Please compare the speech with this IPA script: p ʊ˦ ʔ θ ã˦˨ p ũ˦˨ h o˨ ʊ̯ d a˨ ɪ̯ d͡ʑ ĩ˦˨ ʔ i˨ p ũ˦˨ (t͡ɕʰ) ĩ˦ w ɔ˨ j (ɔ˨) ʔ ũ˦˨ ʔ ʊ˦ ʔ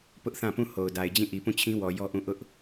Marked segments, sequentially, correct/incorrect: correct, incorrect: ɔ˦

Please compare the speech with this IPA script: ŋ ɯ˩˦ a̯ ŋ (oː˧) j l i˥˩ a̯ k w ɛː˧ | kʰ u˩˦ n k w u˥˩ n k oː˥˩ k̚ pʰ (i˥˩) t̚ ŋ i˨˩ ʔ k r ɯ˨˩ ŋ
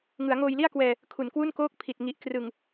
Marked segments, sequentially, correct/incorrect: correct, incorrect: i˨˩

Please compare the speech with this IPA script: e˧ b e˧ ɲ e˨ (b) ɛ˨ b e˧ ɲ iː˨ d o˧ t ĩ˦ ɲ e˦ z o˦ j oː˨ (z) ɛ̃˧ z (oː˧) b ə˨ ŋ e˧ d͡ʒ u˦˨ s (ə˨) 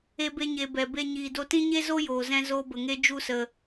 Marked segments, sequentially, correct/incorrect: correct, correct, correct, correct

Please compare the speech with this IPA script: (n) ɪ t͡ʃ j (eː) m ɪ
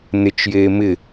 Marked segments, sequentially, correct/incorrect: correct, correct

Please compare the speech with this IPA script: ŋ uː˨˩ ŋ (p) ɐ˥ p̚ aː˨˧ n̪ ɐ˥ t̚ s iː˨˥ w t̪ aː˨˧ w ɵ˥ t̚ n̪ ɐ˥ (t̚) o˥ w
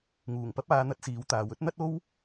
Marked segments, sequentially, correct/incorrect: correct, correct

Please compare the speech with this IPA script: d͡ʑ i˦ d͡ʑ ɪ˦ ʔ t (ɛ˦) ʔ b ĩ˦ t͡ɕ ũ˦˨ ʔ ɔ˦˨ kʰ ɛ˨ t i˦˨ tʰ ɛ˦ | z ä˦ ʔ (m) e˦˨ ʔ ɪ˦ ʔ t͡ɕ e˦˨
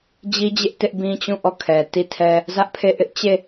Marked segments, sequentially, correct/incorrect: incorrect: ɪ˦, incorrect: pʰ

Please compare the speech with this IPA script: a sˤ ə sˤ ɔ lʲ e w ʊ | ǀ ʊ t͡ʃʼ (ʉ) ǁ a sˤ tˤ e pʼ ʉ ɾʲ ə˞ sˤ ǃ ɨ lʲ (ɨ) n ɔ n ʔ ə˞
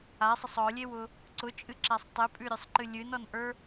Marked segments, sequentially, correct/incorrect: incorrect: ɨ, correct

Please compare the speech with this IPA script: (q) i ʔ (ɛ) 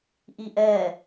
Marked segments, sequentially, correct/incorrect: incorrect: ʔ, correct

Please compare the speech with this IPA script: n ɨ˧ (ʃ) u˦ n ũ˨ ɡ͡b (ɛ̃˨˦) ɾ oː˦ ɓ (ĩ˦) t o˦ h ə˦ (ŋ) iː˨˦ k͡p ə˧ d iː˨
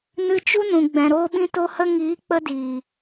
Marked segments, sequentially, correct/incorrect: incorrect: t͡ʃ, incorrect: ɛ̃˨, correct, correct

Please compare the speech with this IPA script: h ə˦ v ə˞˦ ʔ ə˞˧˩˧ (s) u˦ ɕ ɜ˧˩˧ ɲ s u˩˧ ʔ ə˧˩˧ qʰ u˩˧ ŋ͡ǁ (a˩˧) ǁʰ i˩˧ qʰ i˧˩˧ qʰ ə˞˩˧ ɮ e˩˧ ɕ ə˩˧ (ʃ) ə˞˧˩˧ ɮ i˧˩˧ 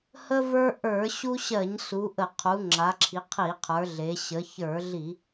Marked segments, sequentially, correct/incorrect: incorrect: ɕ, correct, incorrect: ç

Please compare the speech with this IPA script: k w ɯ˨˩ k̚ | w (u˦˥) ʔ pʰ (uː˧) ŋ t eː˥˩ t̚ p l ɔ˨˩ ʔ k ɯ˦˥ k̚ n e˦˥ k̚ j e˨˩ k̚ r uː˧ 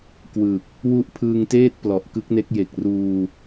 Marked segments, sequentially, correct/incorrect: correct, incorrect: ɯː˧

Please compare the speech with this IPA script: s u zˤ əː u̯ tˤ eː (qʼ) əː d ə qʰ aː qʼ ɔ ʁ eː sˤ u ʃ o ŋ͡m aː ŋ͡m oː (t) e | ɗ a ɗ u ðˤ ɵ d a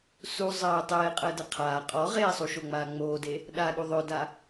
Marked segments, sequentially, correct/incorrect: correct, incorrect: d

